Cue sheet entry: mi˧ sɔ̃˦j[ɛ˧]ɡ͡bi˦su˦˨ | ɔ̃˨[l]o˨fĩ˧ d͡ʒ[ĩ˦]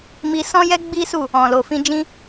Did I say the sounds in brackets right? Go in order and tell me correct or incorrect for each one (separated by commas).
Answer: incorrect, correct, correct